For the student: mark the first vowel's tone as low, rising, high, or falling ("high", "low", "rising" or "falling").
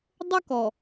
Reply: high